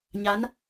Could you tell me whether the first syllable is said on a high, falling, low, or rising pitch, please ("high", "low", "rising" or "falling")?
rising